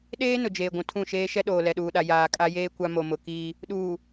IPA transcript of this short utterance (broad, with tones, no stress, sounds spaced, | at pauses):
ɗ eː˦ n ʊ˨ d͡ʒ eː˨ ɡʷ ũ˨ tʰ ũ˦˨ ʃ eː˦ ʃ ɛ˦ ɗ oː˨ l ɛ˨ ɗ uː˨ ɗ a˨ j aː˨ kʼ a˦ j eː˦ kʷ a˦ m o˨ m ʊ˨ k iː˦ | ɗ uː˨